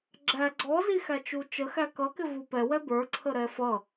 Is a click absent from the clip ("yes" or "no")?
no